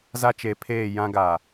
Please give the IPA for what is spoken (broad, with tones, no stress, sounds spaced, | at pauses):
z a˦ t͡ʃ e˨˦ pʰ eː˦˨ j ã˦ ɡ a˨